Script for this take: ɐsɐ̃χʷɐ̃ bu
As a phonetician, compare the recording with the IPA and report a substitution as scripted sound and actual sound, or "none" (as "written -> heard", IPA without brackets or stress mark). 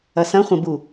none